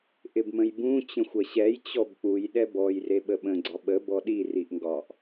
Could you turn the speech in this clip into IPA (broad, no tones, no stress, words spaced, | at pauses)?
ʔɪbmə̃jbũ t͡ɕə̃xʷɐɕɛj t͡ɕɔbk͡puj ɗɛbɔj reɓəɓə̃ ɡ͡ǀɒɓə bɔɗi riʔŋɡɒʔ